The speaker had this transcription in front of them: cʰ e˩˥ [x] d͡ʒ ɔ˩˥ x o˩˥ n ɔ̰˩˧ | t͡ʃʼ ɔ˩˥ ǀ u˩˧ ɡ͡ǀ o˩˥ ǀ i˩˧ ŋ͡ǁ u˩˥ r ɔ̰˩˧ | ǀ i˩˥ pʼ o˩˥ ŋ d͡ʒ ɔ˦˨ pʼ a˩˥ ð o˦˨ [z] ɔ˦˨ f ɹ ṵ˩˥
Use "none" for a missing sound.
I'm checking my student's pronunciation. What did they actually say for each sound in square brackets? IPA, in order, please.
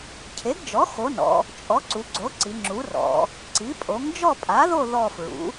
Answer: ɡ, ð

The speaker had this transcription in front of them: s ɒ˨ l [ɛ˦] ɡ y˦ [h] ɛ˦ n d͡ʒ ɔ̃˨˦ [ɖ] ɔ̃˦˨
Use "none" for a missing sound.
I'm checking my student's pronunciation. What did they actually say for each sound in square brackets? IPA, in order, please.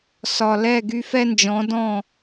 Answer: ɛ˦˨, f, d

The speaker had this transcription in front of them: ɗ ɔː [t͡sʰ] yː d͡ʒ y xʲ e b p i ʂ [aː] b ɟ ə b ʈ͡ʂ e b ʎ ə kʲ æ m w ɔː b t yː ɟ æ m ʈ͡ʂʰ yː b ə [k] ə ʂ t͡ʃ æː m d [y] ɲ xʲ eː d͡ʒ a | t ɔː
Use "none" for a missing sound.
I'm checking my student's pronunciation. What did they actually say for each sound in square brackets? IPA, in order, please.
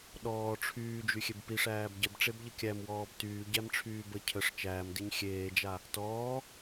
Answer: ʈ͡ʂʰ, æː, cʰ, i

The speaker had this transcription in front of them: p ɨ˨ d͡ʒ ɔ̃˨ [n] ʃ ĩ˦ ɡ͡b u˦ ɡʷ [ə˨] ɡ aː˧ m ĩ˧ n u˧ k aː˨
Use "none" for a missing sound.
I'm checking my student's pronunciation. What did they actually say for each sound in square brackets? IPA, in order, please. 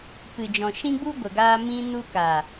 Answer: none, ə˨

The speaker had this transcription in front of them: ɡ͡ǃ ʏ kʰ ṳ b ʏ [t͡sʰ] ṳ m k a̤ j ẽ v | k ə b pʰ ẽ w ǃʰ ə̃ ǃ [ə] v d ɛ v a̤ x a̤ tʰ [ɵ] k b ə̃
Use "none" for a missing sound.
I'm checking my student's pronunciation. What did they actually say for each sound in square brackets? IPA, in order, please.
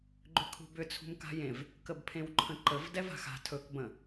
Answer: t͡sʰ, ə, ɵ

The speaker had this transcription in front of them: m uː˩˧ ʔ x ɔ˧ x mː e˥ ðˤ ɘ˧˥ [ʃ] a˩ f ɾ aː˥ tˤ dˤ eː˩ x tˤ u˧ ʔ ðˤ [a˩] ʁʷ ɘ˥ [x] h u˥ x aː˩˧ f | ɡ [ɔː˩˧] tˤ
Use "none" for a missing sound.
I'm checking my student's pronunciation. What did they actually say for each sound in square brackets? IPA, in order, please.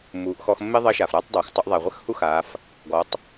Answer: ʃ, a˩, x, ɔ˩˧

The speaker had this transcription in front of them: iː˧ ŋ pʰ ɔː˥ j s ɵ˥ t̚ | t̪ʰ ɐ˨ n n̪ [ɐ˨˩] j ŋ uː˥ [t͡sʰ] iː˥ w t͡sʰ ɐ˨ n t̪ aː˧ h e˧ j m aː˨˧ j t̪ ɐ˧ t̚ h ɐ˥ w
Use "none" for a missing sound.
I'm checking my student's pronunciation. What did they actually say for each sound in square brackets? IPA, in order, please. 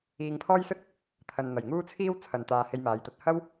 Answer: ɐ˨˩, t͡sʰ

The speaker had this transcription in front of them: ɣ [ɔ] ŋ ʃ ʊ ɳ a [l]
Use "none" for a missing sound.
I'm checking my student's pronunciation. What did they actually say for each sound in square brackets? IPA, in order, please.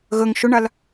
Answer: ə, l

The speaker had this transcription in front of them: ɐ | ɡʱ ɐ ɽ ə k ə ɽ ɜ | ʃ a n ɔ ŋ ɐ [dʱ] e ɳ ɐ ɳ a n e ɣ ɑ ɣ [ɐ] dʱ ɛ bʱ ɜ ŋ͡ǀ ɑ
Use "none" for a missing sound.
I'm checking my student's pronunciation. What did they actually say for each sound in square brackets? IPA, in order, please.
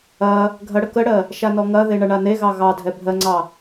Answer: ð, ɑ

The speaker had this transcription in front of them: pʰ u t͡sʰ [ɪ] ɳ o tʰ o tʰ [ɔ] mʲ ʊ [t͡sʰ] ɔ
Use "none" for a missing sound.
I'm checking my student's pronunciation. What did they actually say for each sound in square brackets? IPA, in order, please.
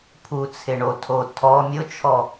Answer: ɪ, ɔ, t͡ʃʰ

